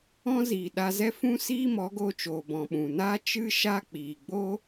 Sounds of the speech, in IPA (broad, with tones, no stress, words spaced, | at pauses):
ɔ̃˧ ziː˨ɗa˧zɛ˦fũ˦ siː˦mɔ˨˦ɡoː˧t͡ʃoː˨ bɔ̃˨ɓũ˨ naː˦ t͡ʃɨ˦ ʃa˦k͡piː˨ ɡ͡bo˦